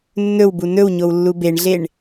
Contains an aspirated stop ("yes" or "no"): no